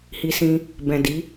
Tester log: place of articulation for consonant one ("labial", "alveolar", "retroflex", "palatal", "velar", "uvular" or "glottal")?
glottal